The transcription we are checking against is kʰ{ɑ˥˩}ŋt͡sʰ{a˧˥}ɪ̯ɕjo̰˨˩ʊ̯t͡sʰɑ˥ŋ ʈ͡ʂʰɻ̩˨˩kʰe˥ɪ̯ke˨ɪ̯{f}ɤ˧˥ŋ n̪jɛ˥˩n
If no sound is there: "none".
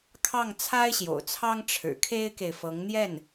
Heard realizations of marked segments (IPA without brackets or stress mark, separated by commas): ɑ˥˩, a˥, f